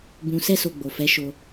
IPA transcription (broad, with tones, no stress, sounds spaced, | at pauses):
b ũ˨ s ɛ˧ s o˨ ɡ͡b o˨ f ɛ˨˦ ʃ o˧